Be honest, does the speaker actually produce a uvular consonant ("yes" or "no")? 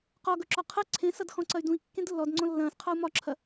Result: yes